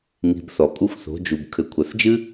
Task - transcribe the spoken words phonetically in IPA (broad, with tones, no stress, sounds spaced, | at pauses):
ŋ i̤˧ b θ ɔ˨ kʼ u˦ xʷ θ o̤˨˦ d͡ʒ u˨ b kʰ ɘ˨ kʷʰ ɐ˨ θ d͡ʒ ɨ˦